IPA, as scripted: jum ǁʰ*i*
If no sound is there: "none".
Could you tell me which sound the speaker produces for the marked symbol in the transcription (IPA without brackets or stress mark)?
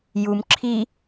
i